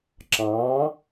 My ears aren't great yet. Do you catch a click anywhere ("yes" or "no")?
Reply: yes